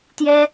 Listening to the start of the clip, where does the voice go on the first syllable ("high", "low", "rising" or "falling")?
high